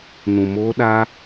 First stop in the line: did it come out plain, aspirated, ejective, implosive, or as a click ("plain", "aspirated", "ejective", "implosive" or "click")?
implosive